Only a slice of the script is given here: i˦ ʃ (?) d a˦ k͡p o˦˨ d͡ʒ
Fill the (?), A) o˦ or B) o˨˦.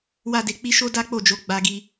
A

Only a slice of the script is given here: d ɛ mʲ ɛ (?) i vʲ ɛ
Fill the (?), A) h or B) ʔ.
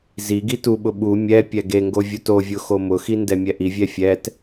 B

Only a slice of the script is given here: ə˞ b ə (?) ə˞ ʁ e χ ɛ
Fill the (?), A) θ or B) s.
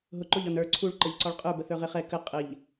A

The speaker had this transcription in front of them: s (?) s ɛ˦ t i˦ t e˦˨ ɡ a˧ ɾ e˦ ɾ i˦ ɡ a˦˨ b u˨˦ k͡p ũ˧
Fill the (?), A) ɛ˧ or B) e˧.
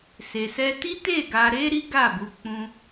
B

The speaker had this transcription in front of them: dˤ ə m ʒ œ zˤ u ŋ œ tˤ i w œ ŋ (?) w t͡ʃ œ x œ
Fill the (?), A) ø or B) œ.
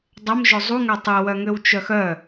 A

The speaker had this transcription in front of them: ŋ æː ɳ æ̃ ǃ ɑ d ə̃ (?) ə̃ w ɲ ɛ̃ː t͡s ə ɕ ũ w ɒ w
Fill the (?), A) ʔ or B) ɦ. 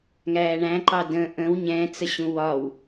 A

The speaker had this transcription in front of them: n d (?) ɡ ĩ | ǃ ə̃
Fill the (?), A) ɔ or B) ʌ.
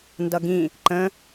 B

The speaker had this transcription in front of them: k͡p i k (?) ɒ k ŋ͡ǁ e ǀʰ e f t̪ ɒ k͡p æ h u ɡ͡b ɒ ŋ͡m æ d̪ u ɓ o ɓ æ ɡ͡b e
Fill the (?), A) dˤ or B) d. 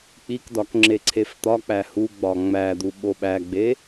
B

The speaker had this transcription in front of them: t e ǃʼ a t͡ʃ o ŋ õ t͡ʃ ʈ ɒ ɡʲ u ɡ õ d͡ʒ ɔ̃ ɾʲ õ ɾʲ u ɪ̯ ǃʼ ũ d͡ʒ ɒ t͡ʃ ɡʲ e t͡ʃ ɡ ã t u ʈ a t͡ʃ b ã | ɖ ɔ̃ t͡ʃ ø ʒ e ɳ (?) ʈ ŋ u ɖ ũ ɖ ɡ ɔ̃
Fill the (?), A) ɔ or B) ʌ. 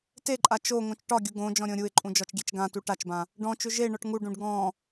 A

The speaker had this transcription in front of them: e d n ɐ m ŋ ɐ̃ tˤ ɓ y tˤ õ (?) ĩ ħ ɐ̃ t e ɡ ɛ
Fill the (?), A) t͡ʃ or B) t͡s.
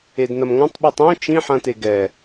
A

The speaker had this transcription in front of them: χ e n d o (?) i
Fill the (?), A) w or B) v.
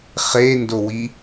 A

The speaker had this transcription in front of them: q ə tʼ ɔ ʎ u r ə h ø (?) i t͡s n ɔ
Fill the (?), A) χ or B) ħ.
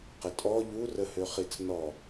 A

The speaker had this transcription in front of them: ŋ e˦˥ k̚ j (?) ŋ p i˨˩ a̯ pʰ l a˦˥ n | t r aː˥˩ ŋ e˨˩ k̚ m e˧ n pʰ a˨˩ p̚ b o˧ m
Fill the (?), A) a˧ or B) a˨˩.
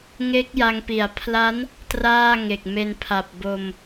A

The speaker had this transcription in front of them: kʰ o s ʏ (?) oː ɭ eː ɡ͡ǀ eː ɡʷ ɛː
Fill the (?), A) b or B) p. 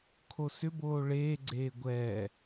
A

